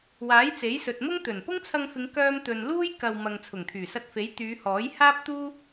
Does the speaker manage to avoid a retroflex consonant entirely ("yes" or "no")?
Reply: yes